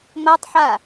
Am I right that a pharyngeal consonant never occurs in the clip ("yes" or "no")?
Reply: no